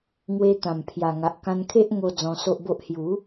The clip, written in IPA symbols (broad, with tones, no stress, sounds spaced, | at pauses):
ŋ w e˧ t̪ ã˨˩ m pʰ j a˨˩ ŋ a˨ ʔ k ã˧ n kʰ e˦ ʔ ŋ o˧ d͡z ɔ̃˧ s o˦ ʔ b o˦ ʔ h j u˨˦